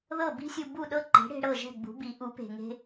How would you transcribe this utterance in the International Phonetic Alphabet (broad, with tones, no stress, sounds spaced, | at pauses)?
ð ɤ˥˩ b i̤˥ sʲ u˧ b u˥˩ ɗ ɤ˥ ǃ e̤˩˥ ɽ e̤˧ ɽ ɤ˥˩ ʒ ɛ̤˥˩ ɡ͡b ṳ˩˥ b i˩˥ ʔ u˩˥ p e̤˩ ŋ e̤˧